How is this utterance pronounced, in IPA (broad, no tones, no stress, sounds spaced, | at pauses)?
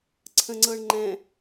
ǀʰ ə̃ ŋ͡ǀ ɤ ɳ ŋ͡ǃ ɛ̃